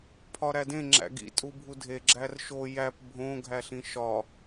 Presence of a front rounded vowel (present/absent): absent